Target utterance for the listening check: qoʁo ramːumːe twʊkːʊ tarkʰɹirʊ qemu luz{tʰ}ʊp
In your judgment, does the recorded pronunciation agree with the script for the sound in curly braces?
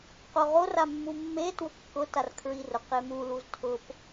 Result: yes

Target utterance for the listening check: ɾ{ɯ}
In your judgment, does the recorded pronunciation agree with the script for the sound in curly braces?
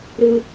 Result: yes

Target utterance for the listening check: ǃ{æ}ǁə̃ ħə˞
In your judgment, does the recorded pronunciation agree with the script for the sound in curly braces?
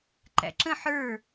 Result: no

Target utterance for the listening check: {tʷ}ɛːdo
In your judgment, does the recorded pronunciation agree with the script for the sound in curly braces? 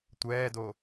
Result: yes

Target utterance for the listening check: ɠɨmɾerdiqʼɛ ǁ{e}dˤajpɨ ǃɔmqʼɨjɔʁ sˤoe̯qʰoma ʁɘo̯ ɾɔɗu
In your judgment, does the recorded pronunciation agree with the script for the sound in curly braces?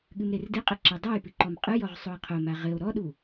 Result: yes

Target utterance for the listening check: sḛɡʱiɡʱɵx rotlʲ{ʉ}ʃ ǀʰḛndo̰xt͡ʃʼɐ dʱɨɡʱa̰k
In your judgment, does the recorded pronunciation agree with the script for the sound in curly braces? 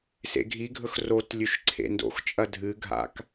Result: yes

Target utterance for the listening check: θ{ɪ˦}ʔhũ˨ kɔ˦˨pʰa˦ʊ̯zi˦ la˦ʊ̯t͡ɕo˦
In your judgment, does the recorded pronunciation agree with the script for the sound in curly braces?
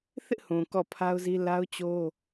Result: yes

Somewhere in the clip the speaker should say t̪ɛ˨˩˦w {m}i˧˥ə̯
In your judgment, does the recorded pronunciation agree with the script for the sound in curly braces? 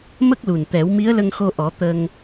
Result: yes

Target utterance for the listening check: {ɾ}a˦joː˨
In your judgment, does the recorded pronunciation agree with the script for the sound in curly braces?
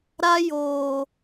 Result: yes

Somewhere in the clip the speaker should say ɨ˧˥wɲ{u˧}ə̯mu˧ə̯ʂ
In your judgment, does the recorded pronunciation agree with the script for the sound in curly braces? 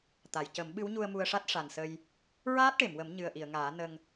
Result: yes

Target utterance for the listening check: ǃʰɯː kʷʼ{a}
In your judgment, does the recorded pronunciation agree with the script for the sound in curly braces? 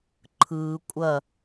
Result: no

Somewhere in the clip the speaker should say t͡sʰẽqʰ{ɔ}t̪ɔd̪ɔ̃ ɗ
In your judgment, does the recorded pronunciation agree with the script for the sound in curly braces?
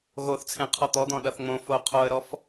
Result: yes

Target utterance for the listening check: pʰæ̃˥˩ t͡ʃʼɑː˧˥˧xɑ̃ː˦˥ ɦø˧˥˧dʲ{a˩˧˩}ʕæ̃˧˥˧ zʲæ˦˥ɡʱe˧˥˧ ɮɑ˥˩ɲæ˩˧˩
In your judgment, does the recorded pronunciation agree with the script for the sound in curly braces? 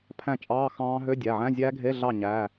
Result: no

